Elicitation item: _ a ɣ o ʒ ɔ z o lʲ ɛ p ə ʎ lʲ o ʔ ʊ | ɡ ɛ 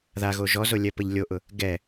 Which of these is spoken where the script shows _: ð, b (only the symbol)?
ð